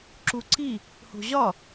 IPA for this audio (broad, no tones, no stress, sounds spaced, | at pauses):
ǁ u ǀ i | h o̤ ʑ ɒ